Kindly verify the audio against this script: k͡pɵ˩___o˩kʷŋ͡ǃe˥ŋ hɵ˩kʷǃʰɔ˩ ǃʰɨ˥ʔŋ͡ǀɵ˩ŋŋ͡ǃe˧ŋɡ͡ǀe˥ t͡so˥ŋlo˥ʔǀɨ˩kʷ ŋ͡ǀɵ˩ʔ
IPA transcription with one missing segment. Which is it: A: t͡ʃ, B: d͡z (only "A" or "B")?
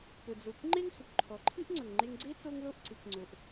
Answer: B